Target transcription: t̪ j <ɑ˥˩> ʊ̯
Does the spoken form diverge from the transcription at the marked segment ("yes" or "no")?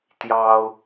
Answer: yes